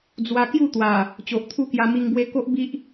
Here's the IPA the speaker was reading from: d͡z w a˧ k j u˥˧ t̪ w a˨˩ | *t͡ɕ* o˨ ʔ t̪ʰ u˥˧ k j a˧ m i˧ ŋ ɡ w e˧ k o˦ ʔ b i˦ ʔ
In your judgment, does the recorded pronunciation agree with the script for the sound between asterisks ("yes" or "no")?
yes